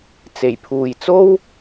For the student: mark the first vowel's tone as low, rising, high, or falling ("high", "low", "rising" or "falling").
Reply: low